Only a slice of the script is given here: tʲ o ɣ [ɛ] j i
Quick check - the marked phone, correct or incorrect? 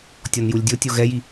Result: correct